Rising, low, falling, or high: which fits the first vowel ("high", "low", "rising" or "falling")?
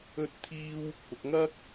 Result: high